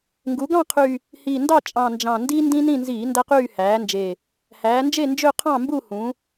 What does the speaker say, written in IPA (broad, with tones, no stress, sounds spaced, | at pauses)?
ŋ ɡ u˩˧ ɡ ɑ̃˦˨ qʰ y˨˩ | h i˨˩ n d ɑ˦˨ t͡ʃʼ ɑ̃˨˩ n d͡ʒ ɑ̃˨˩ n d iː˦ n d ĩ˦ n ĩ˦˨ n z iː˧˩˧ n d æ˦ q yː˦˨ h æː˩˧ n d͡ʒ e˨˩ | h æː˩˧ n d͡ʒ e˦˨ n d͡ʒ ø˦˨ qʰ ɑ̃˦˨ m b u˦˨ h ũ˩˧